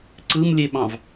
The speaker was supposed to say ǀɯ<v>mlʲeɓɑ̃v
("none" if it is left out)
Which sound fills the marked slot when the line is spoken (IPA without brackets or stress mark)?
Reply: none